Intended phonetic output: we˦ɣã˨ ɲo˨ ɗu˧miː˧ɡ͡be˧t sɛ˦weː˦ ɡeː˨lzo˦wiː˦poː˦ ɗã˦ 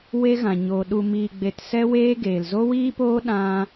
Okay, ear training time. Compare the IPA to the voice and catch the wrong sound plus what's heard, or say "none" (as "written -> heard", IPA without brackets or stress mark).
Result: none